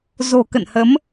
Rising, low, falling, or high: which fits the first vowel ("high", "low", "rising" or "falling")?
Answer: low